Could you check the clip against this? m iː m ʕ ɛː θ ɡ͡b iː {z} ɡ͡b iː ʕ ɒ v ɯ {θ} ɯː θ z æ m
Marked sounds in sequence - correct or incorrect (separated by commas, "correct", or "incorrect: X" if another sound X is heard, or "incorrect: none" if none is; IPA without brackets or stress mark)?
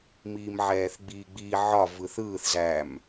incorrect: none, correct